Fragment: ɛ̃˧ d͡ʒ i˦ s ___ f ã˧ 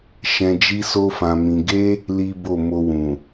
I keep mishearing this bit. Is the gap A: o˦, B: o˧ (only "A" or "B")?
A